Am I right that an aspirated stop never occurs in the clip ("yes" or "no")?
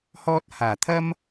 no